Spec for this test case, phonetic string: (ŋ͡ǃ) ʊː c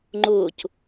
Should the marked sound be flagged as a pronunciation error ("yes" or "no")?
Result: no